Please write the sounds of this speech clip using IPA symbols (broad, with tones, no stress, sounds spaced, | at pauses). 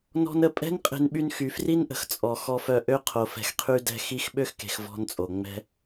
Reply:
n ɔ̤˦ n ə˨ pʼ ɛ̤˦ n qʼ e̤˧ n ɓ y˧ n x y˨ f r i˦ n ʔ ə̤˨ x t͡sʼ ɔ˨ x ɔ˧ f œ˧ ʔ ø˦ qʰ o˨ f ɛ̤˨ x qʰ y˧ d ɛ̤˦ x i˧ x ɓ ø˦ x k e̤˨ x v ɔ̤˧ n t͡sʼ o˨ ŋ͡m ɛ̤˦